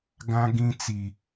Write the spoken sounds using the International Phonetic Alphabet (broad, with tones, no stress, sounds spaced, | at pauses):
ɡ ã˦ ɡ ĩ˦ t͡s i˨